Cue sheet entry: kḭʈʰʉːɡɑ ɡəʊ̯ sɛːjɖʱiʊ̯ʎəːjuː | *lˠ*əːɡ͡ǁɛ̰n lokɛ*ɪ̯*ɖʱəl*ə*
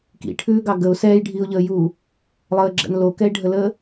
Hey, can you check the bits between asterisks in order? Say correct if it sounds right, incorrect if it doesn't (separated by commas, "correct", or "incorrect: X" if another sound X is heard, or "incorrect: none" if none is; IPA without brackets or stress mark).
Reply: correct, correct, incorrect: əː